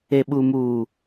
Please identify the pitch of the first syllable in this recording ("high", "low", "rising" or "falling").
low